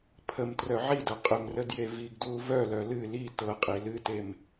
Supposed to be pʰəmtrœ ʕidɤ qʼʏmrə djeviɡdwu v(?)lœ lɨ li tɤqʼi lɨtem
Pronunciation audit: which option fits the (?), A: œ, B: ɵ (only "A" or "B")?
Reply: A